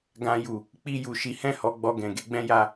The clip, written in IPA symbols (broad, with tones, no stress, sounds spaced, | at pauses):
ɡ ã˧ j u˨ | k͡p i˧ j u˨ ʃ i˨˦ h ɛ̃˦˨ h ɔ˨˦ ɡ͡b ɔ˧ ɡ ɛ̃˨ ɡ e˨˦ ɡ͡b ɛ̃˦ j a˦